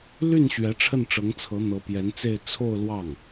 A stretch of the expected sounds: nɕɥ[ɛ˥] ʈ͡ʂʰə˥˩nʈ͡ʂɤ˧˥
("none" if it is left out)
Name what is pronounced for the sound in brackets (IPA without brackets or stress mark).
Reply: ɛ˧˥